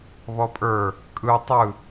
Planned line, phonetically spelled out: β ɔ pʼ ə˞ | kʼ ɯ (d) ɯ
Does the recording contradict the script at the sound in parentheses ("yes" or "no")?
yes